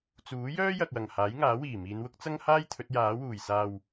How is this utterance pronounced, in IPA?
t͡suː˨˥jœː˥jɐ˨k̚ wɐ˨˩ŋ haː˨˥jŋaː˨˥wiː˨˩miː˨˧n wʊ˥k̚t͡sɐ˥ŋhaː˥j t̪ʰɵ˨˥t̚jaː˨˥wuː˨˩j saː˨w

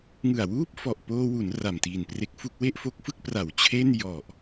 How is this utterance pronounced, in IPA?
ŋɯ˨˩a̯wuː˥˩p̚ fɔ˨˩ʔpoː˧wu˩˦n ra˨˩mtiː˨˩npre˦˥k̚fu˥˩k̚ we˥˩ʔfo˦˥k̚fɯ˥˩k̚pra˨˩w t͡ɕʰe˥˩n jɔ˨˩ʔ

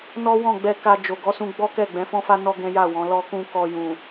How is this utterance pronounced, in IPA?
nɔ˦wɔ̃˦˨ɡ͡bɛ˧ka˧ d͡ʒo˨ɡɔ˨˦sũ˧ ɡ͡bɔ˦kɛ˦˨ ɡ͡bɛ̃˨˦fɔ̃˦fa˦ nɔ˦ ɡɛ̃˦ja˦˨wɔ̃˨˦ lɔ˧kũ˧ kɔ˧jũ˨

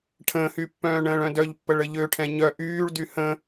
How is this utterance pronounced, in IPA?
ʈʰə̃ːhypːœ̃ː ɳə̃ːɭœ̃dœʎpːəɭ əʎøʈʰɛ̃ ɲœ ʔyːɭdy hə̃

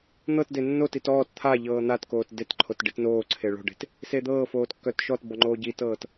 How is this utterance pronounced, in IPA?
n̪ɤtde nːotit ɔːt t̪ʰaʎɤː n̪atkoːt detǃʰot ɖitnoːǀʰe ɭo̤ɖe̤t | sed̪ɤːfoːt kːœtʃɔtbɔ ŋ͡ǃoːɟitɤːt

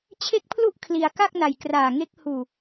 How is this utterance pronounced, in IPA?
t͡ɕʰe˥˩k̚pʰlu˥˩ʔ kʰli˧a̯ ka˥˩k̚na˨˩j kraː˨˩ŋe˦˥k̚ huː˨˩

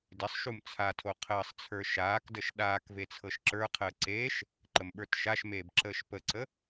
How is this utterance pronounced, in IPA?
dɪsˤʃum t͡sʰatʰo qʰəːsˤt͡sʰə˞ ʃaːkdəʃ ɗaːkve t͡sʰɤʃǁə˞qʰəː ǀeːʃ | ǃəmɓə˞tʃaʃmeːb ǁəːʃpəǀə

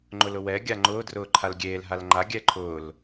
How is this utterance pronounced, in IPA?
ŋ͡ǃʊlʊwɛ ɡʲaŋ͡ǃʊːdrʊː ǃʰalɡʲeːl ɦalŋ͡ǃa ɡʲɛǃʰʊːl

